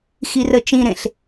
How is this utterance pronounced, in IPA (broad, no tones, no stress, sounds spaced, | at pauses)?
x i r ə t͡ʃ ĩ ɾ ẽ ɬ